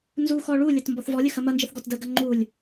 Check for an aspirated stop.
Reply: absent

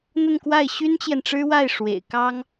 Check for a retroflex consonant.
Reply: present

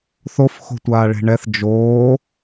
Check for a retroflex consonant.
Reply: present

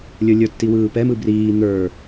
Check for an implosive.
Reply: absent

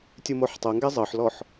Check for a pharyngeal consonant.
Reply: present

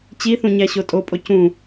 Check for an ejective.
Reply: present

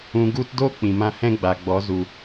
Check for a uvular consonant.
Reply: absent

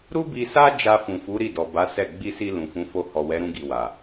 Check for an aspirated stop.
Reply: absent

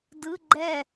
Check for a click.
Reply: present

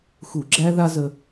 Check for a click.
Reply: present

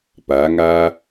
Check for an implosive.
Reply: absent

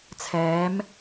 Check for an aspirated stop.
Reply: present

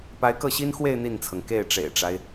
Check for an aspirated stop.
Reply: present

